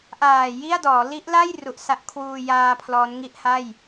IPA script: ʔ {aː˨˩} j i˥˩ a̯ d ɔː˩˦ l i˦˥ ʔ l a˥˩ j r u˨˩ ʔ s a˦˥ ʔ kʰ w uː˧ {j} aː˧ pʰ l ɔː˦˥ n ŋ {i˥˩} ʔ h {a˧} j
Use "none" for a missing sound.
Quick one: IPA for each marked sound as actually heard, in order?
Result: aː˨˩, j, i˥˩, a˥˩

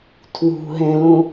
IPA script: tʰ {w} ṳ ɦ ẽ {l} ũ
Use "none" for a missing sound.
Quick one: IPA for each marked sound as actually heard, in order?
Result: w, l

